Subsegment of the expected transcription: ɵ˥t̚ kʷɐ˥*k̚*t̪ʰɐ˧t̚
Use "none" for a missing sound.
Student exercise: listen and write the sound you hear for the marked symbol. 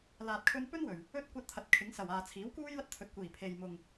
t̚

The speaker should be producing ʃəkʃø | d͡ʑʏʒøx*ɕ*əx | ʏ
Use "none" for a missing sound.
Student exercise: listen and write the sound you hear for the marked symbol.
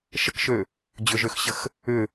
ɕ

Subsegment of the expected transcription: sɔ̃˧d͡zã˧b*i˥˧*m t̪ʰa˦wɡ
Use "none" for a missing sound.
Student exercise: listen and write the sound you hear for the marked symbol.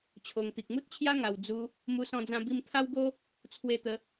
i˧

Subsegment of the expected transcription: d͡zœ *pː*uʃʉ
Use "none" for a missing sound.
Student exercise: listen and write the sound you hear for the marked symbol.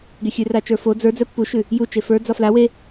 pː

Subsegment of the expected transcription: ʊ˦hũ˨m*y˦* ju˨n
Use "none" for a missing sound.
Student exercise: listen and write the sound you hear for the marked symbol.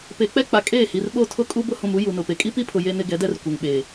u˦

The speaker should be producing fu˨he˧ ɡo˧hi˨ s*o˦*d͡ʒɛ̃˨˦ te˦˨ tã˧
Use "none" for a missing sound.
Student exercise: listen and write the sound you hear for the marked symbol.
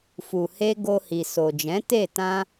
o˨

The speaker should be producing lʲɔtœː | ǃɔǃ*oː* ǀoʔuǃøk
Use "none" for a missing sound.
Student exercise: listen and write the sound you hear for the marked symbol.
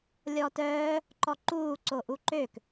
uː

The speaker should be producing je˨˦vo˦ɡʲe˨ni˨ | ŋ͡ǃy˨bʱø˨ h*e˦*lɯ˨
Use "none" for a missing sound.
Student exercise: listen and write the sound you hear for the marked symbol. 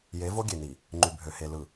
e˨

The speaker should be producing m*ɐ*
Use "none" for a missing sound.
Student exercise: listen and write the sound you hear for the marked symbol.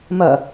ɐ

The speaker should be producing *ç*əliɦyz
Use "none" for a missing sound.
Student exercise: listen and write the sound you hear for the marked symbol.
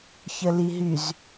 ç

